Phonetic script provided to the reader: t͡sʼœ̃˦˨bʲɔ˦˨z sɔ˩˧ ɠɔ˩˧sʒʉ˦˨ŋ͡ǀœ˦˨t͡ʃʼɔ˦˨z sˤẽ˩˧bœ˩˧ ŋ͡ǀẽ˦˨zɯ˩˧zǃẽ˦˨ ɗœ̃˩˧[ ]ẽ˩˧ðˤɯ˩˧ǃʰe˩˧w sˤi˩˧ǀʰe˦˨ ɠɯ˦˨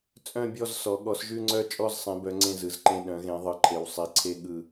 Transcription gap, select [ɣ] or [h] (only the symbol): ɣ